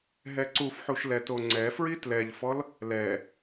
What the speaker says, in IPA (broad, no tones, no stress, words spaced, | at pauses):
ɦɛǀufħuʃ lɛtoŋ͡ǀɛfɹi tlɛʎfɔl | lɛ